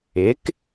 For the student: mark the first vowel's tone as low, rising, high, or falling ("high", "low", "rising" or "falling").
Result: rising